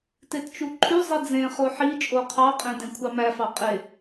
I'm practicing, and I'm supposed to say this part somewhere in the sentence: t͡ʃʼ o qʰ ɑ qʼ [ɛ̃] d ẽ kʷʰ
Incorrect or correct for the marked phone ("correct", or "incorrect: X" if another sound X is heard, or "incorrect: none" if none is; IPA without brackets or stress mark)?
incorrect: ẽ